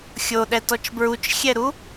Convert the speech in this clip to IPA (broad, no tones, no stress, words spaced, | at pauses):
xʲoɗɛtɔt͡ʃ bɹut͡ʃxʲɛɾu